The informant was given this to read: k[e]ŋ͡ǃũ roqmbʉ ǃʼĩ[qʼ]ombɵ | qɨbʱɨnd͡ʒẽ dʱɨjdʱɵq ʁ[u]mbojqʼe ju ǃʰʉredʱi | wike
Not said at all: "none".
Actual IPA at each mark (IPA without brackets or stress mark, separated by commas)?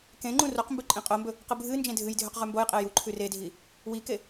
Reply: ẽ, qʼ, ʉ